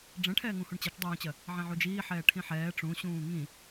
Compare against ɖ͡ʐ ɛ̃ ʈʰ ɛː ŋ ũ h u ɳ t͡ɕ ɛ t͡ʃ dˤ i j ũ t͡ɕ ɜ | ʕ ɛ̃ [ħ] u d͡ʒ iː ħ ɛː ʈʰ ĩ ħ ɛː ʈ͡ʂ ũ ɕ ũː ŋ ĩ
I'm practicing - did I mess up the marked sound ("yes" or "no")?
yes